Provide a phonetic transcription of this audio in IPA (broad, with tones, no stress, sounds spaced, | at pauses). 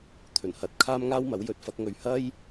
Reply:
t̪ʰ ɵ˨˩ n h ɐ˨ t̚ kʰ aː˥ m ŋ aː˥ w m ɐ˨˥ w j ɵ˧ t̚ f ɐ˨˥ k̚ ŋ ɵ˨˧ ɥ h ɐ˥ j